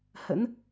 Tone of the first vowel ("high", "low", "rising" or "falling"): rising